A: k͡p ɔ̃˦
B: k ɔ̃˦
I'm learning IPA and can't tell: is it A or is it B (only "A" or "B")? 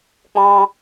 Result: A